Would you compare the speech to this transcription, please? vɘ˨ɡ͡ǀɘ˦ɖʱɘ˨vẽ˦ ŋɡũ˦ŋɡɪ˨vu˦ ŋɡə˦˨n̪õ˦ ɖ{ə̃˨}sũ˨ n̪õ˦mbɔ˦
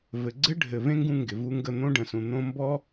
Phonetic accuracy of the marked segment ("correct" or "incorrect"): correct